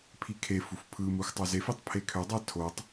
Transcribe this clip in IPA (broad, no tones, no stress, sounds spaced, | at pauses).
pʰ i kʰ e f u f pʰ ɯ m u x tˤ o z e f i tˤ pʰ e kʰ ø dˤ æ tʰ o tˤ